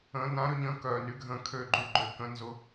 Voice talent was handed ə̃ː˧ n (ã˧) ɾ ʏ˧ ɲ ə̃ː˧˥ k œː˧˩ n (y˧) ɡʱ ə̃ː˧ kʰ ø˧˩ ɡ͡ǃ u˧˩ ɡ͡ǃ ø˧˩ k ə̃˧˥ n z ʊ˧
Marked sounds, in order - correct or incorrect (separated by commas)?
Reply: incorrect, correct